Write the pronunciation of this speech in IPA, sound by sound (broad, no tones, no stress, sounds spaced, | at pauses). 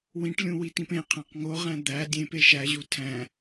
w ĩ ʈ lʲ ũ w i t ĩ p ẽ qʰ æ̃ q ŋ o ʁ æ̃ d̪ æ dʲ ẽ p e ʃ æ ʑ u tʰ æ̃